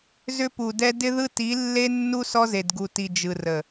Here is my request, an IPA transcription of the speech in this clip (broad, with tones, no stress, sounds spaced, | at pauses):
z ʏ˦ p u˨ d ɛ˦ d ɪ˦ ð ɯ˦ t i˨˦ lː e˦ nː u˦ s ɔ˦ z e˨ d ɡ u˨ t i˨ d͡ʒ ɯ˨ r ə˨